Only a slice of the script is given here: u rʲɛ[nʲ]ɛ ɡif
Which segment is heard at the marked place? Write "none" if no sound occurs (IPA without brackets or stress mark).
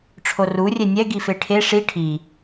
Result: nʲ